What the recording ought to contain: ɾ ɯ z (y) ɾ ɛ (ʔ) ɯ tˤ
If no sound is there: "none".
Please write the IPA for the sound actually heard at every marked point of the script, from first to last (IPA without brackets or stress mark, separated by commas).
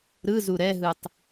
u, ɦ